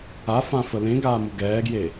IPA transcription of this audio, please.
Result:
a f ã f ə l ẽ ɡ aː m u ɡ ɛː ɡ j e

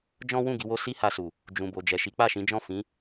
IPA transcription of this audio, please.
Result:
d͡ʒ ɔ̃˦ w ũ˦˨ ɡ i˧ w o˦ s i˦ h a˧ s u˨ | d͡ʒ ũ˨ b o˨ d͡ʒ ɛ˨ ʃ i˨˦ k͡p a˦˨ ʃ ĩ˨˦ d͡ʒ ɔ̃˦˨ f ĩ˨˦

